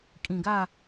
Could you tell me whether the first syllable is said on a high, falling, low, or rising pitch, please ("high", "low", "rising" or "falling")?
low